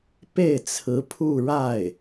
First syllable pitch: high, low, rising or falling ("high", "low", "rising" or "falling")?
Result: falling